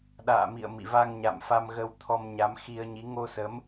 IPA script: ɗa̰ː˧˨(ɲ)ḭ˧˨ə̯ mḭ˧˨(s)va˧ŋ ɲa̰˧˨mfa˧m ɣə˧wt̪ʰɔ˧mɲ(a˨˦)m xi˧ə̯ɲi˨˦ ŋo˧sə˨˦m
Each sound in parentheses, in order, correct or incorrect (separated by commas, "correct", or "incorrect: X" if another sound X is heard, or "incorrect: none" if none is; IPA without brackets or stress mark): incorrect: m, incorrect: none, correct